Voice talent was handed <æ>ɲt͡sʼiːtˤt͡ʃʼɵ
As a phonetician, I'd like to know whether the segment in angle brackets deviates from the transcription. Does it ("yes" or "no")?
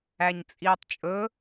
no